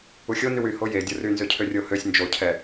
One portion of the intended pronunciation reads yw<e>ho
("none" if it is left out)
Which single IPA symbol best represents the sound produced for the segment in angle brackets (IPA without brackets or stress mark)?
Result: y